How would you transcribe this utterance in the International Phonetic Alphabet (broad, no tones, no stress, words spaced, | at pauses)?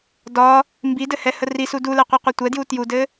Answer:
dɒ | mbidɘhɛhə risu dulɛqʷɛqʷɛ tʷɛdju tjudɘ